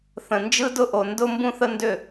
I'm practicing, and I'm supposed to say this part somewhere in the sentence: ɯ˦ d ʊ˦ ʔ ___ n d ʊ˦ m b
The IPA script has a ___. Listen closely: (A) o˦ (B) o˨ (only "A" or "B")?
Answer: B